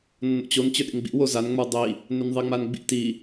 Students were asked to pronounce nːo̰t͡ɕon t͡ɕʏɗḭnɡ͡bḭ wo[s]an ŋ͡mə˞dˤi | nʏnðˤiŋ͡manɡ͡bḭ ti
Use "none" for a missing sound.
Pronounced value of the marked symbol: z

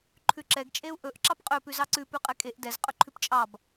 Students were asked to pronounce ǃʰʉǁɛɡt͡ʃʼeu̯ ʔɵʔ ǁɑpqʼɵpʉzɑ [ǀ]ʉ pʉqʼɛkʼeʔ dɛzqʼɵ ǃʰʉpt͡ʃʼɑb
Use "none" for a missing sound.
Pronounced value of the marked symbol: ǀ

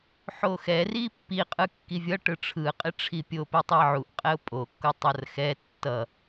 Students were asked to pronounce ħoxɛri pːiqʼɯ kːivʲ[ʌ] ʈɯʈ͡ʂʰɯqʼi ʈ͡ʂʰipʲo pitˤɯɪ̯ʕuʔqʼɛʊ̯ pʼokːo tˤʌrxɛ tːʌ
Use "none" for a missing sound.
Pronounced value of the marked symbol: ʌ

